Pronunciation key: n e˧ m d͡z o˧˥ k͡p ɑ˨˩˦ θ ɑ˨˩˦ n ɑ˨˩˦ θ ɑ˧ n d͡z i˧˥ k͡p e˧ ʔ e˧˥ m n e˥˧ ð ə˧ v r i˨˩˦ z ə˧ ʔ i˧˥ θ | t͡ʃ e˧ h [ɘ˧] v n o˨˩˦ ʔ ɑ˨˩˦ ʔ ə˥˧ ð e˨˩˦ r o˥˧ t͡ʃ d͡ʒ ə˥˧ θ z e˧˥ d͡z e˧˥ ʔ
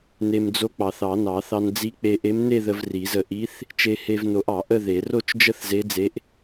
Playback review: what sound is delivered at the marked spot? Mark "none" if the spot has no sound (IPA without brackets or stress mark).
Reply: e˧